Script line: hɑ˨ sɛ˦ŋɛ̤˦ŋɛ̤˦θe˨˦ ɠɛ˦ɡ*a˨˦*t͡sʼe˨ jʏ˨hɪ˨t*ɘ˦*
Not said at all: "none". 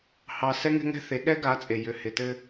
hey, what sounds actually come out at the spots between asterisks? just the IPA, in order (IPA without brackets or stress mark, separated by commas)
a˨˦, ɘ˦